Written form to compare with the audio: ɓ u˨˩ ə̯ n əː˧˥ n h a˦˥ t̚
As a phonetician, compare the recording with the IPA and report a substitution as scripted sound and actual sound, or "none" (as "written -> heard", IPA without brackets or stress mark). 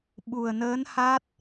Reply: none